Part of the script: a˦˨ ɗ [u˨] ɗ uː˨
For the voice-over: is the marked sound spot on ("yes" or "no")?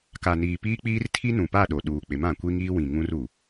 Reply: no